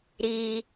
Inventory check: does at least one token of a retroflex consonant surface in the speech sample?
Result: no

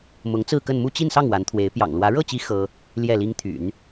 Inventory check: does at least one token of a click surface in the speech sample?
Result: no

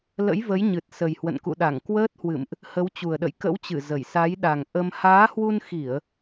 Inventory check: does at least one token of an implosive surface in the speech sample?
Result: yes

